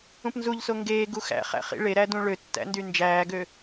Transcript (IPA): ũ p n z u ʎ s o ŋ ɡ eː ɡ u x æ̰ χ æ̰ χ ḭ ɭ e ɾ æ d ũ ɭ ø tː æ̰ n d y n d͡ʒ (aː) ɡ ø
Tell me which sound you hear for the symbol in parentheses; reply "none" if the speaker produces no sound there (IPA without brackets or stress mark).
æː